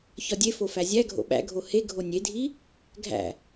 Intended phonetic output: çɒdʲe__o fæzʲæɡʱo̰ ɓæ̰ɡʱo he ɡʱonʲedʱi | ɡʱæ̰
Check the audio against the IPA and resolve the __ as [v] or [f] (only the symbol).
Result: f